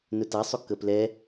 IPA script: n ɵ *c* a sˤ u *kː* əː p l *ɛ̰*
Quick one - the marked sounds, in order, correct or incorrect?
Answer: incorrect: t, correct, incorrect: ɛ

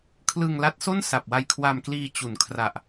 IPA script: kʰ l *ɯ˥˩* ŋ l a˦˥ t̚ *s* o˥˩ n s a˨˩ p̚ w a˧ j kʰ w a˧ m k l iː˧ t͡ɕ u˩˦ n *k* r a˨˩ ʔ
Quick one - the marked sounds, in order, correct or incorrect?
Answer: incorrect: ɯ˧, correct, incorrect: kʰ

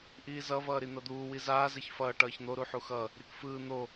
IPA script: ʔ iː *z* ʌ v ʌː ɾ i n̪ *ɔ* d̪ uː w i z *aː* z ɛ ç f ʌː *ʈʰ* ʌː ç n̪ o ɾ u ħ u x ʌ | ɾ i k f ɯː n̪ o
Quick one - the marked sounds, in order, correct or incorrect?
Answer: correct, incorrect: ʌ, correct, incorrect: ʈ

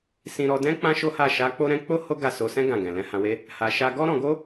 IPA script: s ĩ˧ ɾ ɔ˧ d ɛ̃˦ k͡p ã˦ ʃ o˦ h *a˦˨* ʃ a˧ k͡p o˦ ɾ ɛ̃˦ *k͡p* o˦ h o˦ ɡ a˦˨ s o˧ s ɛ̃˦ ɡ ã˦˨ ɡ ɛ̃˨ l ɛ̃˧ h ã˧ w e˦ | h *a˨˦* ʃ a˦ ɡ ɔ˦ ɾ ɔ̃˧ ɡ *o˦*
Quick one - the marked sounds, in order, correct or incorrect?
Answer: correct, correct, incorrect: a˧, correct

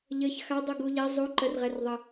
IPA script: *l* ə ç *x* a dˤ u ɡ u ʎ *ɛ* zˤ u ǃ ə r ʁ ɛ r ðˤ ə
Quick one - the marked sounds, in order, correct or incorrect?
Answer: incorrect: ʎ, correct, correct

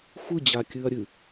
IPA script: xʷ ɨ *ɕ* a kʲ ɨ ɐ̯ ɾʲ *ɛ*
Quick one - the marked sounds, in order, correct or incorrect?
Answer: incorrect: d͡ʑ, incorrect: ɨ

